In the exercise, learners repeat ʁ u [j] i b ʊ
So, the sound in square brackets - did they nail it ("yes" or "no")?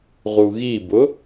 no